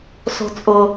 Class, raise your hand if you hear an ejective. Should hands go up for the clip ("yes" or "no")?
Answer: yes